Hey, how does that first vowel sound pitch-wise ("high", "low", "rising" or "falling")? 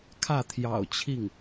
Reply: falling